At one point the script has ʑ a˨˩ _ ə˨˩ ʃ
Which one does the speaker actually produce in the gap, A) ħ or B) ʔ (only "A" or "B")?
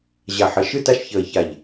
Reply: A